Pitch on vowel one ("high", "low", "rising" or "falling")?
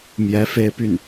rising